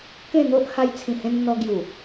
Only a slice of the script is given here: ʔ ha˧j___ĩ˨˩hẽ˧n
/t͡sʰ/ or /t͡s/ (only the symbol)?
t͡sʰ